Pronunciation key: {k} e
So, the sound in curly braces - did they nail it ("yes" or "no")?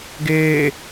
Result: no